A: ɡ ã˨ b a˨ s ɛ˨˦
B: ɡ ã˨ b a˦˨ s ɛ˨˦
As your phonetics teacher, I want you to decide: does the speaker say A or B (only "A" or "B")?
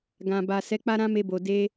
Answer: A